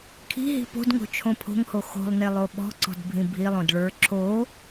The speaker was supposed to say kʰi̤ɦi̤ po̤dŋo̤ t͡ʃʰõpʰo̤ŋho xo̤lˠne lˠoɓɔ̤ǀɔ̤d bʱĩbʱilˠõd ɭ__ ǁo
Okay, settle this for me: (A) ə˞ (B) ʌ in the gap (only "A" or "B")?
A